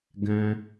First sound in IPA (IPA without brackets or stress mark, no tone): ɡ